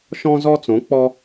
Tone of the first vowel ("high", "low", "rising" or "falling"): high